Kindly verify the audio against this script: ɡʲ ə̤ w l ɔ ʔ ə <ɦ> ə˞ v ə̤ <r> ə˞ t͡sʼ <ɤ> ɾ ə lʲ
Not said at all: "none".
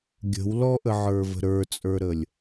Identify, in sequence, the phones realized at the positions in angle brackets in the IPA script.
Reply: ʕ, ɾ, ə˞

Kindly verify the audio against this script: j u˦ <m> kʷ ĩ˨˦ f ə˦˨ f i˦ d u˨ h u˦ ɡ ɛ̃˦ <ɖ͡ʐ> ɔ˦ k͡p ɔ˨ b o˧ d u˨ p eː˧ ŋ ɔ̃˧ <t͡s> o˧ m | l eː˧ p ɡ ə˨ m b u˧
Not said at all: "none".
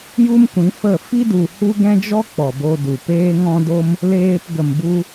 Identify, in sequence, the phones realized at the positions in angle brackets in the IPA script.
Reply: m, d͡ʒ, d

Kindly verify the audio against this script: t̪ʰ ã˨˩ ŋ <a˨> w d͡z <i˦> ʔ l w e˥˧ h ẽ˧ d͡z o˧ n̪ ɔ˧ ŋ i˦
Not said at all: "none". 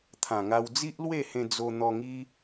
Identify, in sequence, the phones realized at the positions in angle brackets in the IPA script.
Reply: a˧, i˦

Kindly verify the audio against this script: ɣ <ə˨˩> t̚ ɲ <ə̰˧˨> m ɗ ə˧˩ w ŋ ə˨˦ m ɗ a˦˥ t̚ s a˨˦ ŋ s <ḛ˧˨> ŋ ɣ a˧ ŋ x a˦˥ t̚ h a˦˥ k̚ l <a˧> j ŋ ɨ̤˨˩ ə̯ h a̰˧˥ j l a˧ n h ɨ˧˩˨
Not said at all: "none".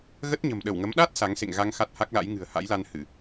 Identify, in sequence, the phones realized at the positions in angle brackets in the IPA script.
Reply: ə˦˥, ə̤˨˩, ḛ˧˨, a̰˧˥

